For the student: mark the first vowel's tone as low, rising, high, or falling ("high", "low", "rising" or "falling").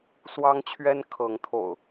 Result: high